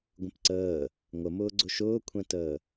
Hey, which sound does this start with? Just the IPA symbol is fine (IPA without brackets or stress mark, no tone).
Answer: ɡʷ